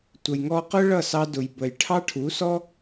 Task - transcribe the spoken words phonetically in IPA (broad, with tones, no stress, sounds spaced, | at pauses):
tʷ ə˨ j ŋ ɔ˧ q ʊ˦ ɭ ʌ˦˨ s ɑ˧ d ʊ˨ j b ə˨ j ʈʰ ɑ˦ ʈʰ u˨˦ s ɔ˦